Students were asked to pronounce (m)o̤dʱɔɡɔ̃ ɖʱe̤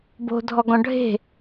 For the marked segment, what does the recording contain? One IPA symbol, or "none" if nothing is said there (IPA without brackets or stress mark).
b